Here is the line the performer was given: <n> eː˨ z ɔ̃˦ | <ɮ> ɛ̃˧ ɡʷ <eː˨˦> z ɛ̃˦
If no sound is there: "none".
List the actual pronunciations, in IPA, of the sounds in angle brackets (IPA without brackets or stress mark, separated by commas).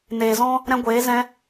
n, ɾ, eː˨˦